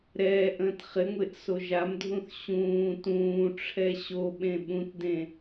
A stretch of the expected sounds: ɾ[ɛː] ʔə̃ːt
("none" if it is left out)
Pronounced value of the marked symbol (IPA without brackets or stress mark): ɛː